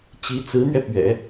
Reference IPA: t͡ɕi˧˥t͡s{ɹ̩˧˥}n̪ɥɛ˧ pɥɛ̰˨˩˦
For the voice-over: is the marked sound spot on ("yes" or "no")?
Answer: yes